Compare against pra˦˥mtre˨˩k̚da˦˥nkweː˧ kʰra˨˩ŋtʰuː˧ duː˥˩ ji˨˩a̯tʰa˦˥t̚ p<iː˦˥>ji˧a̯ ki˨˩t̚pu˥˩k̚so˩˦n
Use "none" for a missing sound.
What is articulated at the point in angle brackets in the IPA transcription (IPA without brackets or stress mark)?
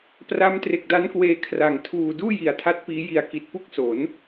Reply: iː˦˥